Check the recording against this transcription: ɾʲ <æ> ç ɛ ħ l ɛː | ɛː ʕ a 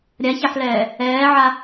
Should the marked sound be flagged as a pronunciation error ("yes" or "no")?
yes